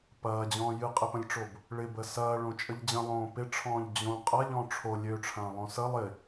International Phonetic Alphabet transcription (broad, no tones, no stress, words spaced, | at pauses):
pɐːd͡ʑɔ̃ː jɨqʼɪpə̃lʲʈ͡ʂob | ɭɪbə sɐːɭõt͡ʃʼəʎ d͡ʑə̃lˠõː pɪʈ͡ʂʰɔ̃ːʎ d͡ʑõ qʼɐʎɔ̃ ʈ͡ʂʰo lʲøʈ͡ʂʰɐ̃ːlˠõ sə lˠɪ